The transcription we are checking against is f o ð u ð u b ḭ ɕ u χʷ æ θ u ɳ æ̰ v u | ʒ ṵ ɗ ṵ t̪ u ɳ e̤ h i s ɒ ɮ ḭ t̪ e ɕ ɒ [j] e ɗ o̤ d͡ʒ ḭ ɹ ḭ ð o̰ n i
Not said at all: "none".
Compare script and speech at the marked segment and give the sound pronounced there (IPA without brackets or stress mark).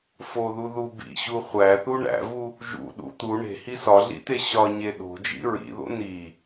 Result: ɲ